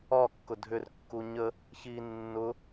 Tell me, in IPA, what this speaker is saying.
ɒ kː ʊ dʱ ʏ r kː u ɲ ə | ç i nː ʊ

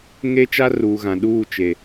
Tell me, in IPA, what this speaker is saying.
ŋ e˦ t͡ʃ a˦ r uː˨ ɣ ã˨ ɗ uː˦˨ t͡ʃ e˨

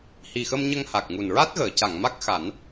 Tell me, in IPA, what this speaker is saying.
h i˨˩ x ə˧ m ɲ ə˧ ŋ h a˨˩ k̚ ŋ u˨˩ n ɹ a˦˥ t̚ ɣ əː˨˩˨ c a˨˩˨ ŋ m a˦˥ k̚ x a˨˩˦ n

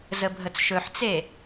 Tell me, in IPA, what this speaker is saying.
z ə bʱ ə t͡s ʃ ɵ ħ t͡s e

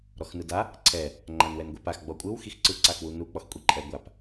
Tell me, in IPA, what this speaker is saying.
ɾ ɔ x n ɯ d a | ǀʰ ɛ | ŋ͡ǃ a n w ɛ n ɡʷ ɛ p a x ɡ͡b ɔ kʷʼ ɯ w x i x ǀ ɯ ǀ a x w u n u k͡p ɔ x kʷʼ i ǃʼ ɛ ɡʷ a p

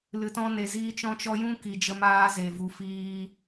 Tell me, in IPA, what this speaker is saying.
l ɨ˨ t ɔ̃˧ n e˨ z iː˧ t͡ʃ ɔ̃˧ t͡ʃ ɔ˧ j ũ˦ k i˨ d͡ʒ ə˧ m aː˧ z e˨ v u˨ f iː˧

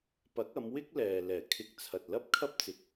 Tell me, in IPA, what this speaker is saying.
p ɐ˨˥ k̚ ɐ˨˧ m w ɪ˥ k̚ l ɛː˨ l ɛː˨˩ kʰ ɪ˧ k̚ t͡sʰ ɐ˨ t̚ l ɐ˥ p̚ kʰ ɐ˥ p̚ t͡s ɪ˨ k̚

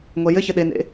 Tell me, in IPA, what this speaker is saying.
ŋʷ ɛ j ɘ ç ɘ ɗ e n ḛ

